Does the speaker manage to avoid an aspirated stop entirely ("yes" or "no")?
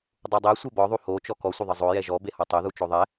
yes